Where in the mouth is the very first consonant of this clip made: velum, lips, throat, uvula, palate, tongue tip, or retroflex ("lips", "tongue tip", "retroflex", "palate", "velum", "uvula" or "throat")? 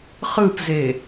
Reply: uvula